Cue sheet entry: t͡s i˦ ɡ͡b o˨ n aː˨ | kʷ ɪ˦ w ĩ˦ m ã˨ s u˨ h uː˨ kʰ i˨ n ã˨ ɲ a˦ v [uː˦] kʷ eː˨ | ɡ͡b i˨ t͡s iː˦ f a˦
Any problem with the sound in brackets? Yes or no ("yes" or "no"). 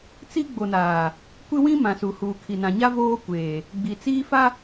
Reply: yes